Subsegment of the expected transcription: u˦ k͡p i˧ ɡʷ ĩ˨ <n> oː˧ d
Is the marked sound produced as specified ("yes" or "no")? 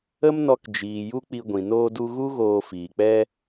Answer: yes